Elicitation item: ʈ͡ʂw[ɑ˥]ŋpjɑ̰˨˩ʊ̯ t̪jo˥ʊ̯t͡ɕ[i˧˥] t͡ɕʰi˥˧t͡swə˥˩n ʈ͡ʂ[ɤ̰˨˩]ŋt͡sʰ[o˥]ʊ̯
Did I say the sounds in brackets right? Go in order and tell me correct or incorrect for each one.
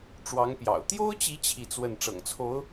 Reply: incorrect, correct, correct, incorrect

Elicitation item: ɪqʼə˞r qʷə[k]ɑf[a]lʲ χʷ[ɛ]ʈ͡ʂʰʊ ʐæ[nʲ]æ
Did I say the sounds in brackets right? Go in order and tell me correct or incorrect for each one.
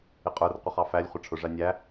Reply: incorrect, incorrect, incorrect, correct

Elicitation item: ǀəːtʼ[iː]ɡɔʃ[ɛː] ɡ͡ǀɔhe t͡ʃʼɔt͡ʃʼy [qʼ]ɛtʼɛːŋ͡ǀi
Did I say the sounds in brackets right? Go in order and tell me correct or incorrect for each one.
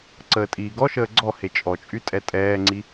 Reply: correct, incorrect, incorrect

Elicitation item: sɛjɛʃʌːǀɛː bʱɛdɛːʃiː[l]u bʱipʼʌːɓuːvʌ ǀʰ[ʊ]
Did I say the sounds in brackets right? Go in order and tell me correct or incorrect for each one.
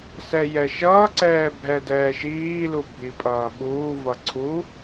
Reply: correct, incorrect

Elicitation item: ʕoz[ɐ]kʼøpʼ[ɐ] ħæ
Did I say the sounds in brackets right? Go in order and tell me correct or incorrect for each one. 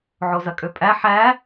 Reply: correct, incorrect

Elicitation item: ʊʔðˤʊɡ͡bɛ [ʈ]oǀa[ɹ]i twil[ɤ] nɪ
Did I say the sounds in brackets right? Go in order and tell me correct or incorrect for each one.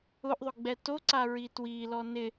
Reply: incorrect, correct, incorrect

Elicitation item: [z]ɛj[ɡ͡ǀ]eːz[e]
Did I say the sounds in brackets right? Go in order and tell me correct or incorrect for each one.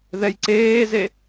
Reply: incorrect, incorrect, correct

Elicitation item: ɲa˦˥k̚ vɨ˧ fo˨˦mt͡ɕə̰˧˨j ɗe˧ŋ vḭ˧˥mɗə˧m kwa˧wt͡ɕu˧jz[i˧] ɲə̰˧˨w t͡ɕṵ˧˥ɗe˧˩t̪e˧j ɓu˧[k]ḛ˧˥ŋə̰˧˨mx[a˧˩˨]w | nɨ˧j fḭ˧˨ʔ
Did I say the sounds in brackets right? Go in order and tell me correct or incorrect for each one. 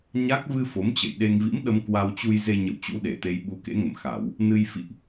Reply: incorrect, correct, correct

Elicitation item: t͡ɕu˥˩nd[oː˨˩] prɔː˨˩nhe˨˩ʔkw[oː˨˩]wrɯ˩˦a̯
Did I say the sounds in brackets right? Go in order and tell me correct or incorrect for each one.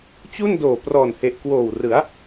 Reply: correct, correct

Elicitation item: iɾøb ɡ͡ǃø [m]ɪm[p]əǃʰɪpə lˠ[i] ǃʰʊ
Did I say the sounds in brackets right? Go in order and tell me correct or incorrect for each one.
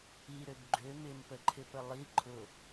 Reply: correct, correct, correct

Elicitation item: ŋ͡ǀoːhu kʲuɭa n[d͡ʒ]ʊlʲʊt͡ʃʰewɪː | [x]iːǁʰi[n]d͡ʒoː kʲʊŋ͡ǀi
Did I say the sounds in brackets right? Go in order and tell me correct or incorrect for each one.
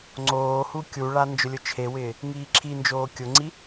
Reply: correct, incorrect, correct

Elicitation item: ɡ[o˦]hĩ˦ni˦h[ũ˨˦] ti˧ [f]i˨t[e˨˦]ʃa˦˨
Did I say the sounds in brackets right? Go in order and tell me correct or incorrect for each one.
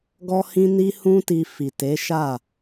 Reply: incorrect, incorrect, correct, correct

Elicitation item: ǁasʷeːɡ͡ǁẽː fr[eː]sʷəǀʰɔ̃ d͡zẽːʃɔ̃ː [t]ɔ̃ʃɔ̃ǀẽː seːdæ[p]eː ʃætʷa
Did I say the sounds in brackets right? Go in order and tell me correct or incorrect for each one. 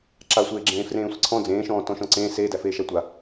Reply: incorrect, correct, incorrect

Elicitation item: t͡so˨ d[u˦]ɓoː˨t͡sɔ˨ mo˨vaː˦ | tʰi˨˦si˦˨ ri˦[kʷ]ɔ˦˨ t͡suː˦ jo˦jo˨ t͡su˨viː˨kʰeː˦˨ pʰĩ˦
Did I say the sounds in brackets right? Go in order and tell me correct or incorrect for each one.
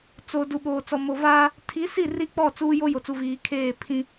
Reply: incorrect, incorrect

